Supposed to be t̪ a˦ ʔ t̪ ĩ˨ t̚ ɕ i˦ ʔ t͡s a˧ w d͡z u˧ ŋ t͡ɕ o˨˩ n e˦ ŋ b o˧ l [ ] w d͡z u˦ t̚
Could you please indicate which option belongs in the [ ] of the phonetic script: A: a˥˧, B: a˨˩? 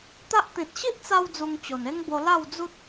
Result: A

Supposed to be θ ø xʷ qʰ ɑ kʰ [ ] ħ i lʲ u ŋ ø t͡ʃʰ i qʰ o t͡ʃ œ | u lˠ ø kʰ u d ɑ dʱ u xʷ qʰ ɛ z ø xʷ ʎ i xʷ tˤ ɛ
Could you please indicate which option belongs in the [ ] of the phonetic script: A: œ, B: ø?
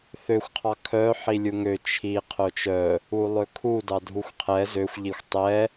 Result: A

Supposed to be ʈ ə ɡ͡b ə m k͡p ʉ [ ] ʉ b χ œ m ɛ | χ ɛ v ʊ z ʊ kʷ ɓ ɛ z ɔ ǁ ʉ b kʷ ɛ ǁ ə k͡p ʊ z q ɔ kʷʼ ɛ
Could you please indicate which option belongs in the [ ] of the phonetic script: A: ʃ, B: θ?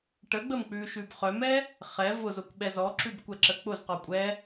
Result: A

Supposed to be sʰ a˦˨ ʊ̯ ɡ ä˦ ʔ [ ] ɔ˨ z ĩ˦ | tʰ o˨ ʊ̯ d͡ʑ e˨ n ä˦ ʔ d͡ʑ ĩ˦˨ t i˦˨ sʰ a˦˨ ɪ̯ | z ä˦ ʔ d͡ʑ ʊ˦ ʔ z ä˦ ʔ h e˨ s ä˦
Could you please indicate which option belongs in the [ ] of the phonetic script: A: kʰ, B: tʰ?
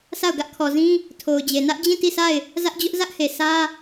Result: A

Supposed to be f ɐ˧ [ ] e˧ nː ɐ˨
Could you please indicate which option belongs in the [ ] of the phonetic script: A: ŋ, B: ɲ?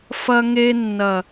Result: A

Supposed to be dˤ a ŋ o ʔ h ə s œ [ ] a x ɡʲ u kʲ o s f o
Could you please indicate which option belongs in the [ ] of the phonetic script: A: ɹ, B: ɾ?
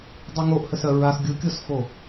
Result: A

